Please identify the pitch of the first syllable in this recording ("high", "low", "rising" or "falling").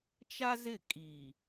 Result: high